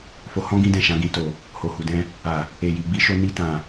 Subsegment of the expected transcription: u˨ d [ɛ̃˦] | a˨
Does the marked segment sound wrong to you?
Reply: yes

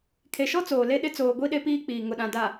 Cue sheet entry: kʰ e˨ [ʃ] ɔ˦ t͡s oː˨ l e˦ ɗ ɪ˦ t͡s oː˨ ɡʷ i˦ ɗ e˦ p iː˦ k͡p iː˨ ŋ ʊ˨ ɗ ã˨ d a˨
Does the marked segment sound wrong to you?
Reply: no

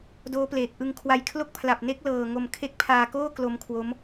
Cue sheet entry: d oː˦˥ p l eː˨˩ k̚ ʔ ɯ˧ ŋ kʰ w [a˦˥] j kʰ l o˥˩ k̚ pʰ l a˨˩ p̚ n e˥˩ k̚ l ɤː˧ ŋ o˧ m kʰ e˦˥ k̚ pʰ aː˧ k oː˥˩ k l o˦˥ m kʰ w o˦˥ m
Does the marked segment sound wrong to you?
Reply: yes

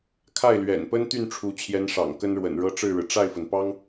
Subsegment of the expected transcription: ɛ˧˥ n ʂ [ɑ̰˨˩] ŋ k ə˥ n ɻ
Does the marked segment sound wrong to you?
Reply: no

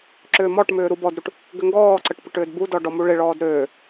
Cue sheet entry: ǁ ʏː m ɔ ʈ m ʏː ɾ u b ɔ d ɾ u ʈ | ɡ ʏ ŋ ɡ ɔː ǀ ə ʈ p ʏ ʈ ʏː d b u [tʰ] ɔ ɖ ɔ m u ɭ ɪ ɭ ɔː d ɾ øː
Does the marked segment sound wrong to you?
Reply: yes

